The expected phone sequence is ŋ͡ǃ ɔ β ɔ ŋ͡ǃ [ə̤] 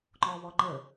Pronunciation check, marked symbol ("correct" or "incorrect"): incorrect